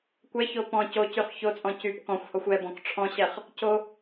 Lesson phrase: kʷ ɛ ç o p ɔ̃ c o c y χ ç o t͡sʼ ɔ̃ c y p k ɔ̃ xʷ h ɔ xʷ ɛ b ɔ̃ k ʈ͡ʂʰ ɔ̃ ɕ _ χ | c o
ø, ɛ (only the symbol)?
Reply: ɛ